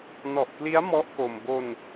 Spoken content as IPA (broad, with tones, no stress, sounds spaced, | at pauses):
n ɔ˨˩ ʔ k l i˦˥ a̯ m ɔ˦˥ ʔ k o˧ m b o˧ n